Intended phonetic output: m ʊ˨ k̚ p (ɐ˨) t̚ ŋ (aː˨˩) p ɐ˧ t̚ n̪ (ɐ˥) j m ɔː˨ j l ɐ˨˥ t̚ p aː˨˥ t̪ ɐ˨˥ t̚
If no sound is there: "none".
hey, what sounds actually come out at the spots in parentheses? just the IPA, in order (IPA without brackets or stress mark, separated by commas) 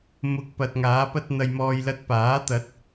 ɐ˨, aː˨˧, ɐ˨